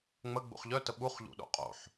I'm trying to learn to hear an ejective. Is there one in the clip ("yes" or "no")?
yes